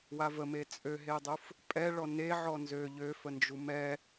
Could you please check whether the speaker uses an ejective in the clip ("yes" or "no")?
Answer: yes